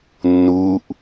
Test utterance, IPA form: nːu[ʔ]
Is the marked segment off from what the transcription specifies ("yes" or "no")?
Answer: no